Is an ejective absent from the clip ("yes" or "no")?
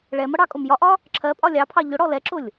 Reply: no